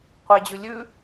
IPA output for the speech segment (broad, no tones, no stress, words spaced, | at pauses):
qʷed͡ʑʉ lʲʉ